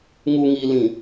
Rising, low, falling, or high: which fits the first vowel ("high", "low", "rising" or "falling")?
low